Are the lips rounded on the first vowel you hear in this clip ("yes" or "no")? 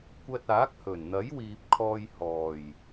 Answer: no